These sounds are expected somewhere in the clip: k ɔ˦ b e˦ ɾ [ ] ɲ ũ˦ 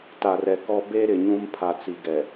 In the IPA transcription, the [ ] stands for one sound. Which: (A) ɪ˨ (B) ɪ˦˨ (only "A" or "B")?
A